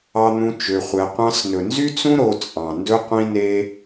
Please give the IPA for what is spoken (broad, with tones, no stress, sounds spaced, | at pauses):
ɑ˧ n̪ ũ˧ t͡ʃ ø˧ χʷ ɛ˧ qʷ ɑ̃˧ s n ɵ˨ n z y˦ t͡s ũ˦ ɾ o˧ t͡sʼ ɑ̃˨ n d ɵ˦ qʷ ĩ˦ n e˦